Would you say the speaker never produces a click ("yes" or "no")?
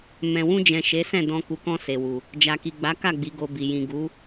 yes